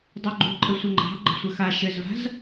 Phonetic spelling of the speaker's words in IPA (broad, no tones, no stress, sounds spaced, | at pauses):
dˤ o ɡ͡ǃ ṳ ǃʼ ɘ sʷ ɘ ŋ͡ǃ ɑ̤ ɡ͡ǃ ə̤ sʷ ɘ x a ʃ ɘ z v a̤ z